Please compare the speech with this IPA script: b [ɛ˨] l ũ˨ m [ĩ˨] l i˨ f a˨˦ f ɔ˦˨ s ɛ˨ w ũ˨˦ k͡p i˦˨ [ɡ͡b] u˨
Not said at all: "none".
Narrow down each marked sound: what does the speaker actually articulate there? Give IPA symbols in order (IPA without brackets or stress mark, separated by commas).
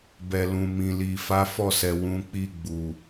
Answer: ɛ˨, ĩ˨, ɡ͡b